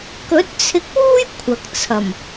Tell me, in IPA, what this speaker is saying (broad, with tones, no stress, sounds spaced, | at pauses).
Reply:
k ɵ˨˥ t̚ t͡sʰ ɪ˧ k̚ w uː˥ j kʷʰ ɐ˨ k̚ t͡sʰ ɐ˨˩ m